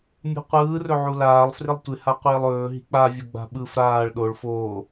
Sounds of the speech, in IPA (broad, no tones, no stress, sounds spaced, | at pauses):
mʲ ṳ qʷ ɯː r ɵ ʕ u l aː lˠ f r ɪ lˠ tʷ ɪ h a qʷ ɪː lˠ ɵː ɦ i̤ k͡p a vʲ o ɡ͡b a̤ ɓ ɯ f ɾ aː ɭ ɗ o ɭ f oː